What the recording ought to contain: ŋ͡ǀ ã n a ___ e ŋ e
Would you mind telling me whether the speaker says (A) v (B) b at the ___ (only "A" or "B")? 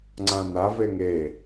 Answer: A